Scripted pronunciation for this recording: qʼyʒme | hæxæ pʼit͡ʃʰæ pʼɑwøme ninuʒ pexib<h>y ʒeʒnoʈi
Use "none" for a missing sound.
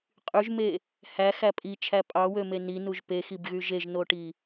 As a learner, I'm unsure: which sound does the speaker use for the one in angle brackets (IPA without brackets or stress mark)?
ɣ